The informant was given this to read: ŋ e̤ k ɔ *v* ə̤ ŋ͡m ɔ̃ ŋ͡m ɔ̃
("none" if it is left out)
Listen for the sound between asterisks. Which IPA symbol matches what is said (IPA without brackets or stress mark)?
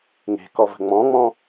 v